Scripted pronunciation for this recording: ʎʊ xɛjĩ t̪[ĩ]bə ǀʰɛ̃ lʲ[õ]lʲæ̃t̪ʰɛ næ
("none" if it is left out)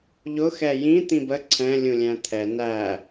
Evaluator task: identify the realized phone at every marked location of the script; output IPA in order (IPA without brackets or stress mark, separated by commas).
ĩ, ũ